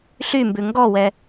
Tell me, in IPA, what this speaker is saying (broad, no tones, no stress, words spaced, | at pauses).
ɬymbʉ ŋɡɔwɛ